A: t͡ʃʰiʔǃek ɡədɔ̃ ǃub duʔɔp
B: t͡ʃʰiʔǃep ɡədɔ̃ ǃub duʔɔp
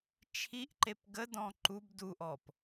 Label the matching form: B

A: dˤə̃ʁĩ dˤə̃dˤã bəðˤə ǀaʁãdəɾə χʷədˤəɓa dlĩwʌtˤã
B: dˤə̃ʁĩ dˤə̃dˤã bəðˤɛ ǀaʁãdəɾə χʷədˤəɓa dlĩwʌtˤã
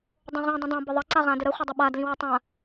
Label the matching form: A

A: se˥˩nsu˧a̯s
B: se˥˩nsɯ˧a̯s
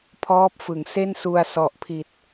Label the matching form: A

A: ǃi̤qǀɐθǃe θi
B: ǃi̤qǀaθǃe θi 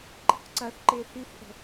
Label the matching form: A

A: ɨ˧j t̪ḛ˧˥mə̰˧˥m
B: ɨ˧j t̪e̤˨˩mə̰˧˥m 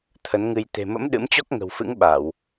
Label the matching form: B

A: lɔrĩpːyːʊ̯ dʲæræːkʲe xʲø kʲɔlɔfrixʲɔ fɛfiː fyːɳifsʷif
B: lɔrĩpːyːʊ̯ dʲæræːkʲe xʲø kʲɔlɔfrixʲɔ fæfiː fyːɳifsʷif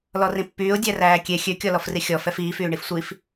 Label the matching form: A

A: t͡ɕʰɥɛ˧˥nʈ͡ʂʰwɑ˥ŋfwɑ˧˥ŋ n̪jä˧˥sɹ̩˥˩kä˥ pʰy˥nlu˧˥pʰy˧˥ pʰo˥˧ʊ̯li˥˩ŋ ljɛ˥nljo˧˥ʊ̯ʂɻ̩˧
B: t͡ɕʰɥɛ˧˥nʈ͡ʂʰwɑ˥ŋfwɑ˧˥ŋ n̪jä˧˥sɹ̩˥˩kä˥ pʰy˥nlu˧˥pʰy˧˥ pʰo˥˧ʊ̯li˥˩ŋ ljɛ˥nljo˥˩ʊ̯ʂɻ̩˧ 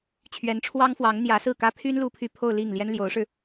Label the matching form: A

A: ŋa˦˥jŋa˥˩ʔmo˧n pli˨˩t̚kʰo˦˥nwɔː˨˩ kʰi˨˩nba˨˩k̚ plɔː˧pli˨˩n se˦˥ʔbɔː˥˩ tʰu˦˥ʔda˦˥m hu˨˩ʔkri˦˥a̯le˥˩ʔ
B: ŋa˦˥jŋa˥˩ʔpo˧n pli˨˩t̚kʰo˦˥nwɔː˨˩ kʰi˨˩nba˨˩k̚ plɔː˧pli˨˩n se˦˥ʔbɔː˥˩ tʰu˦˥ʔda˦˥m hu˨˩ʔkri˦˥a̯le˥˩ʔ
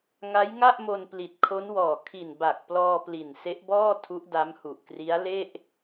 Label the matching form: A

